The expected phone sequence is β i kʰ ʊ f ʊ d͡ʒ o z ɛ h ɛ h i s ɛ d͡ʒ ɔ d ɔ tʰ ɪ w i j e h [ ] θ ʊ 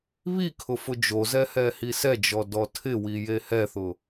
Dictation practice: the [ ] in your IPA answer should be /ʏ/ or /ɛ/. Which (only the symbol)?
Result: ɛ